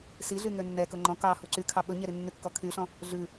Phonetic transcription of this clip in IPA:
s i ɮ y ŋ ø nː ɛ k ɵ ŋ͡ǃ ɔ̃ k ɑ h u ǀ y kʰ ɑ ɓ ɵ ɲ ɛ ɾ i nː y kː ɔ kʰ y ɬ ɔ̃ | ɮ ʉ

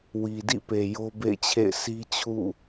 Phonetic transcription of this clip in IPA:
w i˨ d ḭ˦˨ p e˨ j o˦ b ḛ˦˨ ɪ̯ t͡ɕʰ ḛ˦˨ ɪ̯ sʰ i˦ t͡ɕʰ ṵ˦˨

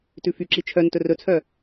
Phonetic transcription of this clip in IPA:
t ʉ f y ǁ i t͡ʃʰ œ n t ɵ r ɵ t͡sʰ œ

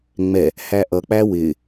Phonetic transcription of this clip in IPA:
ŋ͡m ɛ | h æ ʔ ʌ k͡p æ w ɪ

